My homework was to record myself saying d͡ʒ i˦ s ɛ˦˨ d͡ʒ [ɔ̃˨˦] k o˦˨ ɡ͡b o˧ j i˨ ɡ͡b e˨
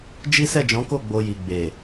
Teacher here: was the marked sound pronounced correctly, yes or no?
yes